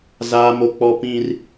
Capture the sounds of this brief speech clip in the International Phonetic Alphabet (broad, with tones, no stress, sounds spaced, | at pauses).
z aː˦ m o˦ k͡p ɔ˦ p ĩ˦ r